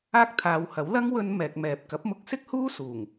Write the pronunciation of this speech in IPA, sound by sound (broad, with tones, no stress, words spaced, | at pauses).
aː˥k̚t̪ʰaː˨˧whɐ˨˥w lɐ˥ŋ wɵ˧n mɛː˨k̚mɛː˨p̚ kɐ˨˥p̚mʊ˧k̚ sɪ˥k̚huː˥ suː˨˩ŋ